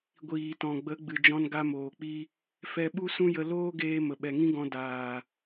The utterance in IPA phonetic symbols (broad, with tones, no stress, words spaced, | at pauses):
ɡʷiː˨tɔ̃˨ɡ͡bə˨˦ ɡ͡bɨ˨d͡ʒɔ̃˧nɡa˧ moː˨k͡pi˦ | fɛ˧ɓu˦sũ˦jə˧ loː˦ɡeː˧ mə˨ɓɛ˨ŋĩ˦ɡɔ̃˧ daː˨